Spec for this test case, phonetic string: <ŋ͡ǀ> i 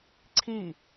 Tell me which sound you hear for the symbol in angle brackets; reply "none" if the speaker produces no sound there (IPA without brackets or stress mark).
ǀʰ